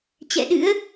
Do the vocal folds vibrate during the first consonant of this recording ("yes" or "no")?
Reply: no